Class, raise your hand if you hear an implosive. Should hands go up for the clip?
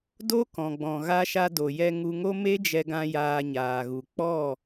no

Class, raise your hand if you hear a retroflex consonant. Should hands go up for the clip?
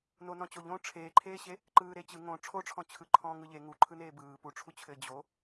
yes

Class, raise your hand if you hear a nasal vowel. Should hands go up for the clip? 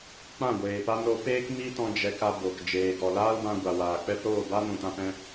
yes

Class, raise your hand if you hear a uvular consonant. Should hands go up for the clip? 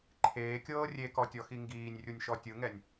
no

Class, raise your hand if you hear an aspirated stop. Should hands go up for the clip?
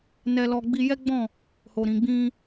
no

